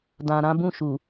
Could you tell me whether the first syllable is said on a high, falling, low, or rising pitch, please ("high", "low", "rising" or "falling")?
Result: low